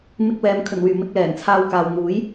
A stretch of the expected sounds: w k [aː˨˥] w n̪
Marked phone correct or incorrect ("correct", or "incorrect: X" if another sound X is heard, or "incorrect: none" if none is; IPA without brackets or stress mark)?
incorrect: aː˨